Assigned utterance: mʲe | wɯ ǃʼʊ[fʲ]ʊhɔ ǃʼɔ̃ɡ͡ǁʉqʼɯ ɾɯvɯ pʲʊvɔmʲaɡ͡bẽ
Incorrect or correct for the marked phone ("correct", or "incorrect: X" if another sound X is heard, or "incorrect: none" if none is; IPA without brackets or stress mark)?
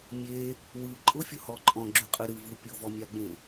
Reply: correct